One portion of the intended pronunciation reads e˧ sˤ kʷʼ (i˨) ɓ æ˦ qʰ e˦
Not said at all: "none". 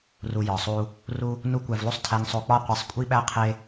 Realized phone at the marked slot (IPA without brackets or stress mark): i˦